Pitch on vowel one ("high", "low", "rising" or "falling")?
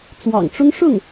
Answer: low